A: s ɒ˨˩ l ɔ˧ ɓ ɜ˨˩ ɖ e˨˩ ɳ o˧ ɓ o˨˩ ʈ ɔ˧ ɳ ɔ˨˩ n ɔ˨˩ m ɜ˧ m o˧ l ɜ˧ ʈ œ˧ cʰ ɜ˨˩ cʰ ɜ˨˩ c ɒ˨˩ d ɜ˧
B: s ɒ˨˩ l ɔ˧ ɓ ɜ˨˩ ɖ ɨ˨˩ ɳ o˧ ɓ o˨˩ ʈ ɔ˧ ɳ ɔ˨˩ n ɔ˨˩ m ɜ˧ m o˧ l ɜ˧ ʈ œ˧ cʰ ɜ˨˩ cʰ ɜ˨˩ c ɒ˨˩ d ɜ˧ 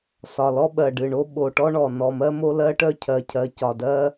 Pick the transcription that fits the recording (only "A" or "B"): B